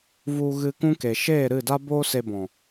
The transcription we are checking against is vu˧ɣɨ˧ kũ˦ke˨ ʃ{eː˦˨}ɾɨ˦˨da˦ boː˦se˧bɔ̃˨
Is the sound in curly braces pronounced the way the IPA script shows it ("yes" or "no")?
yes